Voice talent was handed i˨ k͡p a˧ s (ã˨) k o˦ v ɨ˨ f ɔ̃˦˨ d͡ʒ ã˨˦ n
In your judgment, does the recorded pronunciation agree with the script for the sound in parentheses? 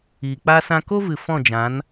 no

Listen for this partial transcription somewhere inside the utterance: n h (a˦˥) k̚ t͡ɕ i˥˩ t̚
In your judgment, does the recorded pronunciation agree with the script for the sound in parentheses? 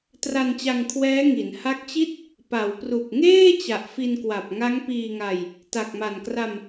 yes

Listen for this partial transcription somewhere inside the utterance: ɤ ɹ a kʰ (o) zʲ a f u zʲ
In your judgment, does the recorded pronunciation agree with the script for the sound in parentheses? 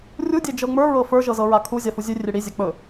no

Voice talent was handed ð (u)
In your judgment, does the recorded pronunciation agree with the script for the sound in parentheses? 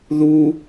yes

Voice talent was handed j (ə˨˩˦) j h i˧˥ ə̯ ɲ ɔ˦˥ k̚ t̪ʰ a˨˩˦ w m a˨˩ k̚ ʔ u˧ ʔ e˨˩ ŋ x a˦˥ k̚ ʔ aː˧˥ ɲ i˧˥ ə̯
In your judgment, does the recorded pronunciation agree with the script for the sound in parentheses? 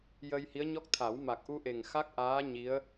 no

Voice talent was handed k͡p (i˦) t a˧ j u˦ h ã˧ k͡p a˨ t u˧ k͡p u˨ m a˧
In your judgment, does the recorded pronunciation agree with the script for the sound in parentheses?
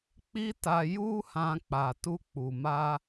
yes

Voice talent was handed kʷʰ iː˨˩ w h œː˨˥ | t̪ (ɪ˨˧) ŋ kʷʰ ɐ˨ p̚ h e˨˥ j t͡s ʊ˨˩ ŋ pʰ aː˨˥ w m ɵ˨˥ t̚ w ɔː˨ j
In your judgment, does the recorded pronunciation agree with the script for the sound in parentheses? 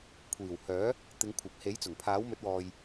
yes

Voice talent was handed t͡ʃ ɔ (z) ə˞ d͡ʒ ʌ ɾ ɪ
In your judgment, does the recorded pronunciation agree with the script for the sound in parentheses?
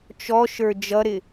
no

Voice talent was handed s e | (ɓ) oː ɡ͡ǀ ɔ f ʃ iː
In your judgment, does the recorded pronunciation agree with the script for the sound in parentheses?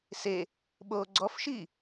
yes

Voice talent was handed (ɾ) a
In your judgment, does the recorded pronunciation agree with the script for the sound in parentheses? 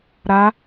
yes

